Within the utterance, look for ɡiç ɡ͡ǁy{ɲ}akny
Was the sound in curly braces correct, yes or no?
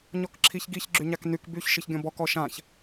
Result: yes